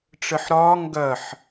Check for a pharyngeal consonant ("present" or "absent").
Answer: present